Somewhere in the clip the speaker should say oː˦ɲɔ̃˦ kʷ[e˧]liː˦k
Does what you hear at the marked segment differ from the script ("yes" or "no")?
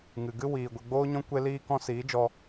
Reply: yes